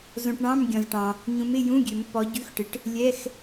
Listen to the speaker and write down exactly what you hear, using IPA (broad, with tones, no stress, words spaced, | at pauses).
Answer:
zõ˨ʈɳɑ̃˧˥˧m ɡʲɔ̃˨zʈɑ̃˨ | ɲũ˨˦mɪ˧˥˧jũ˧˥˧ ɡʲø˨˩˦mpːɔ˨˦ɟʉ˧˥˧xʈɪ˨˦ʈ | lʲɛ˧˥˧x